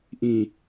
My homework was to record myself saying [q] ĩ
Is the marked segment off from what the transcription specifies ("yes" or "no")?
yes